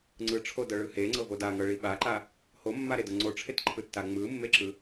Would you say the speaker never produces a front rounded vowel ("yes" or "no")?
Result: yes